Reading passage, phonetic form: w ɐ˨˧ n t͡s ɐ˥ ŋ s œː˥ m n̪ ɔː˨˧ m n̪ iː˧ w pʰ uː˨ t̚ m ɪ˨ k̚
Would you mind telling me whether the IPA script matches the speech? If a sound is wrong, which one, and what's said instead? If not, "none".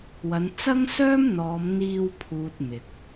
none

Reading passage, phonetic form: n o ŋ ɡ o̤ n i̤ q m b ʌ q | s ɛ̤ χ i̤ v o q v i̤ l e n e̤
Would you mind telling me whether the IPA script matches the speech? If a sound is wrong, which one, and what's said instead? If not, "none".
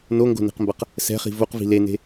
none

